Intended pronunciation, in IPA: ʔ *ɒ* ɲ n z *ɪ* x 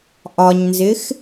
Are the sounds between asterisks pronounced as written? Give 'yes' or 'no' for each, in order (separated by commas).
yes, yes